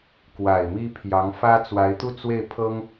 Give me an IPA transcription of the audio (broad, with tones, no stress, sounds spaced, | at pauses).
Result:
k w a˨˩ ɪ̯ m i˥ pʰ j ɑ˧˥ ŋ f ä˥ t͡s w a˧˥ ɪ̯ t̪ u˥˧ t͡s w e˥˩ ɪ̯ pʰ ɤ˥ ŋ